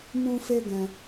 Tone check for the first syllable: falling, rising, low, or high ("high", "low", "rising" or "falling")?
high